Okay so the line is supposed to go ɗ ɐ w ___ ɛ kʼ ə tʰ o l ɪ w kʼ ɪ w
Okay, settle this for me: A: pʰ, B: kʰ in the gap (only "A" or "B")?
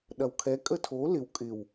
B